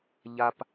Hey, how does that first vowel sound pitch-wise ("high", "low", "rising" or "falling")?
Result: low